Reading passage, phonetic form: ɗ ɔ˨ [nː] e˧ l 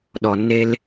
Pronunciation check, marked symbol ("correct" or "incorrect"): correct